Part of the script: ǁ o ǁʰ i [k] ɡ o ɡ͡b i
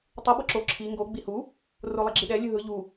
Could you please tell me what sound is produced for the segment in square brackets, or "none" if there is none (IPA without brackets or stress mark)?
ŋ